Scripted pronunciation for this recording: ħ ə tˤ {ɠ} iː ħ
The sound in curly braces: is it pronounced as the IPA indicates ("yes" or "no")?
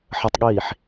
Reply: yes